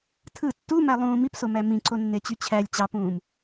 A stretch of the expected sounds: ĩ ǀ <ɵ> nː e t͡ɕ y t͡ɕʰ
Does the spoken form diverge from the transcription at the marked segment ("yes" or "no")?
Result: yes